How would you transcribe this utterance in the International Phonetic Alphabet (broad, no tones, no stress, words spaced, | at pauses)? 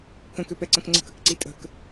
kə̃køpɛǀə̃k ŋ͡ǀə̤kəkǀi tʼə̤k